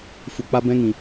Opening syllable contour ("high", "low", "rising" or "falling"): low